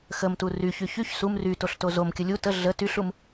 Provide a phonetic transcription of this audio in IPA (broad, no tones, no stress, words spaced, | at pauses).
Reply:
xəmtu ryçy çyç sum rytoɬto zomkʲə lʲu tə ɮə tyɬum